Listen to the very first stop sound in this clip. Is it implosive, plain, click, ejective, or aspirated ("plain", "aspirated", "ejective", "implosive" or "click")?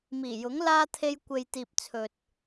aspirated